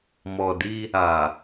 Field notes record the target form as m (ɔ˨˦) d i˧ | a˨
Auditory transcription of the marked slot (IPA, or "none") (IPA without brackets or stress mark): ɔ˨